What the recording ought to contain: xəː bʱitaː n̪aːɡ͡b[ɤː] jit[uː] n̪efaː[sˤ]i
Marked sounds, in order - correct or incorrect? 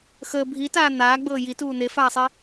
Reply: correct, correct, correct

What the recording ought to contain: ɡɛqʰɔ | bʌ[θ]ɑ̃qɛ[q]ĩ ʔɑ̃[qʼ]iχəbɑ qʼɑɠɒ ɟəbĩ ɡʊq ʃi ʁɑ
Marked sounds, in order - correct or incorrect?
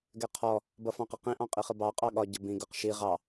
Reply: incorrect, correct, correct

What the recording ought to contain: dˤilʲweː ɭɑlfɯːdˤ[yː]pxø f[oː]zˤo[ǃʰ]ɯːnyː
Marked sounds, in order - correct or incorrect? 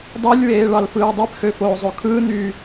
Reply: incorrect, correct, incorrect

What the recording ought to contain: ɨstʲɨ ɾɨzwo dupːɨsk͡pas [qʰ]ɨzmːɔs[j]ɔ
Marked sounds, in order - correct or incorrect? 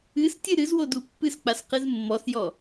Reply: incorrect, correct

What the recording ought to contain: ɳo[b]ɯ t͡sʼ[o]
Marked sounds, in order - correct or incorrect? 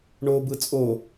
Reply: correct, correct

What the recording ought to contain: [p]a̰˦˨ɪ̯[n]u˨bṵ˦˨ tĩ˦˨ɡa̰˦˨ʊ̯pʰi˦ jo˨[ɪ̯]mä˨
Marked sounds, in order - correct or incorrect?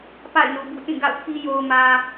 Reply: correct, correct, incorrect

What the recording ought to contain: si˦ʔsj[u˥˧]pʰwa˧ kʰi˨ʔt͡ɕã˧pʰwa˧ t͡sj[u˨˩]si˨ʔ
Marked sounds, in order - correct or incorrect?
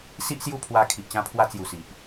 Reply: correct, correct

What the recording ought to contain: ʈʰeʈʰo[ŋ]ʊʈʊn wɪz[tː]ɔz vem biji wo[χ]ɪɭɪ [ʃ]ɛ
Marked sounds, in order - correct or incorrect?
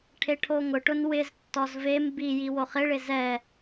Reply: correct, correct, correct, incorrect

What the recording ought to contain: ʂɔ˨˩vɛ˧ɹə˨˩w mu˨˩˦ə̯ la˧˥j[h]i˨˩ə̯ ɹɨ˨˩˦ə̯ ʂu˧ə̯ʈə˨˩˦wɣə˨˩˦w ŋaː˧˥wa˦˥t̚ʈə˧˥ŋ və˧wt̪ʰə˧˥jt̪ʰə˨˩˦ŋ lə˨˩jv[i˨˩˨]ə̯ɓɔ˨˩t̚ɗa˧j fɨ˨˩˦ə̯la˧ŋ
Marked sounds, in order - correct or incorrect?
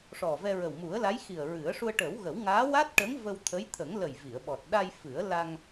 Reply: incorrect, correct

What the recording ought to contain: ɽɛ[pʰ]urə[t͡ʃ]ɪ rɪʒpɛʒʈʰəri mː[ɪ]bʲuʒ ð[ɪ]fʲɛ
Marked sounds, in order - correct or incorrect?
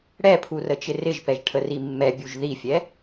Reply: correct, correct, incorrect, incorrect

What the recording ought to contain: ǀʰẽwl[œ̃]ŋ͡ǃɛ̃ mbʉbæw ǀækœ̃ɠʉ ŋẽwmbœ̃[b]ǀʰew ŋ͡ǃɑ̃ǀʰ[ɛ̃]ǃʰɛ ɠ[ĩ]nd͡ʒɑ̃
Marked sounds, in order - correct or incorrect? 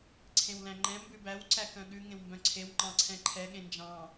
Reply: incorrect, incorrect, correct, incorrect

